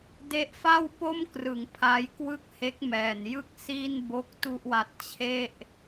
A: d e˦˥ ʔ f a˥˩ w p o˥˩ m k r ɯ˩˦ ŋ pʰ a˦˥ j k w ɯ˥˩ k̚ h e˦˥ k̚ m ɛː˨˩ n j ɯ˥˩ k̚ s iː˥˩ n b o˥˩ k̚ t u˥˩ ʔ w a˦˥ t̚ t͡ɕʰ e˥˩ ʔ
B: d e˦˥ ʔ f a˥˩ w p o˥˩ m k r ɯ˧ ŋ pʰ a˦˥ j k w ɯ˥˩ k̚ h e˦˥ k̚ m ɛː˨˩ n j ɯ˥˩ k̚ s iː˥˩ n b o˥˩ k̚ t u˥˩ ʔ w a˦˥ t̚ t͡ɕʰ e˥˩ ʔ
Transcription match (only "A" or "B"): A